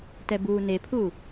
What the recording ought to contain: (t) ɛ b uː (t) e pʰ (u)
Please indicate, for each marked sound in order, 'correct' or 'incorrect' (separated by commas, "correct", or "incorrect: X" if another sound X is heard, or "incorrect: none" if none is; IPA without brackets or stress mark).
correct, incorrect: n, correct